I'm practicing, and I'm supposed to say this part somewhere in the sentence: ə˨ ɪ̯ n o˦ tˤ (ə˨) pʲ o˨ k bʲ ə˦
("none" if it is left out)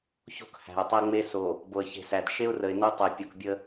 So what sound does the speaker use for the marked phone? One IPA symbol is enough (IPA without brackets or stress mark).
ɛ˨